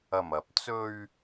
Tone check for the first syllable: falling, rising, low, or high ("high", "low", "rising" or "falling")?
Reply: low